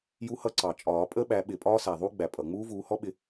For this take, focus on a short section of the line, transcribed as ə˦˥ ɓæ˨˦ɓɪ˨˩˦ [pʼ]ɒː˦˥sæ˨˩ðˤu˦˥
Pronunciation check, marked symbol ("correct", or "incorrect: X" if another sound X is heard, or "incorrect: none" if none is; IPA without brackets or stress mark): correct